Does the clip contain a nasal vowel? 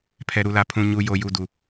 yes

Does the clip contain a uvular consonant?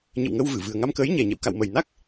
no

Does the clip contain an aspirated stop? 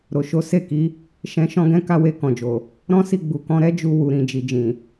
no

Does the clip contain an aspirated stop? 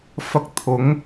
yes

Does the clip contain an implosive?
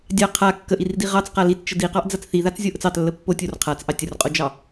no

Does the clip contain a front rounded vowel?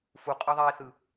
no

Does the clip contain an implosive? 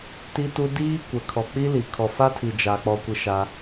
no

